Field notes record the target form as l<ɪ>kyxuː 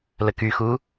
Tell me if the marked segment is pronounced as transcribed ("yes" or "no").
no